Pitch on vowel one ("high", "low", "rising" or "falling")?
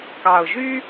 low